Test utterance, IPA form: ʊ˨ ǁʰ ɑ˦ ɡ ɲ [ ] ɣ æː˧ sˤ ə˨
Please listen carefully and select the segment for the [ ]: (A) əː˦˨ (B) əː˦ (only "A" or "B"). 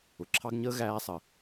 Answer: B